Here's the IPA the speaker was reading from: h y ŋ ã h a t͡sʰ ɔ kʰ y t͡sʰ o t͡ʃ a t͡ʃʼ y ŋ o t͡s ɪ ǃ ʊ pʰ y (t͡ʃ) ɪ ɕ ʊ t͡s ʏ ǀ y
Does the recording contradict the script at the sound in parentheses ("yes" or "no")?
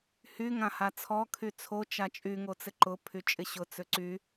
yes